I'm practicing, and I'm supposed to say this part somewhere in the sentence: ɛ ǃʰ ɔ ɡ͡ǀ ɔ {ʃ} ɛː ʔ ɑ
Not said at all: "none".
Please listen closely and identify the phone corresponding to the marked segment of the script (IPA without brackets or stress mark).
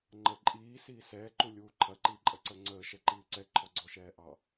ʃ